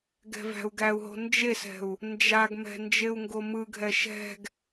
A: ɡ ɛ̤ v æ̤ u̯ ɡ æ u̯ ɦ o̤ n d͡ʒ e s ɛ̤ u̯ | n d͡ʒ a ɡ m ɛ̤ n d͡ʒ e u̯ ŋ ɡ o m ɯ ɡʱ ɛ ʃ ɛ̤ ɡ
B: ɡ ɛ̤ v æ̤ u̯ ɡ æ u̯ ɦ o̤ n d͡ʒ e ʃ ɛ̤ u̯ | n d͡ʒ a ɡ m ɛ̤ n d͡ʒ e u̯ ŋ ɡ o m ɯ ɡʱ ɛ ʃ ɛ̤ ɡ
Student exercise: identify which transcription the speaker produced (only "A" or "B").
A